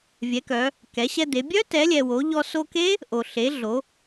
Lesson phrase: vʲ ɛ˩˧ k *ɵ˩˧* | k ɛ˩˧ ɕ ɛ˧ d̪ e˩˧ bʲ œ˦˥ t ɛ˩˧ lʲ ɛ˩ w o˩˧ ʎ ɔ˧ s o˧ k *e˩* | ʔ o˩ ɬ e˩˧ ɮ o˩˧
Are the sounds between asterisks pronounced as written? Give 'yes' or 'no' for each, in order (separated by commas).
no, no